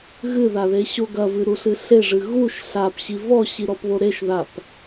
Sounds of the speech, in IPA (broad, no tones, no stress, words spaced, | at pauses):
ɣɨðaðeɕo ɡɐvɨɾuɬɨ ɬeʐɨ ɣuʃ ɬapɕi vɔɕiɾɔpβo ɾeʃðap